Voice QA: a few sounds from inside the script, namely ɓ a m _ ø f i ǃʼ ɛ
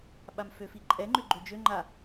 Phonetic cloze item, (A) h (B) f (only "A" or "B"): B